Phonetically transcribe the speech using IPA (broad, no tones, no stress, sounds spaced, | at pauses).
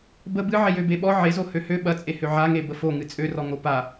b ə b ɨ ʕ e j ø b e ɓ ɔ ʕ e z o h ø h ø ɓ ɐ t͡sʼ e h ø ʕ a ŋ e b ə f o ŋ ɨ t͡sʼ ø r ɔ ŋ o p a